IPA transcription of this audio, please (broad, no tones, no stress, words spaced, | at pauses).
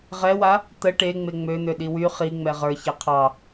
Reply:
ʁɛwa | t̪ə ʈe ŋ͡meŋ͡møn̪ø ɗiwy χiŋ͡mɛ ʁə˞ çɛqʰɑ